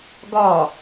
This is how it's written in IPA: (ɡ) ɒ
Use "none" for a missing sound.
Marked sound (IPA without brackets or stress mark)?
ɡ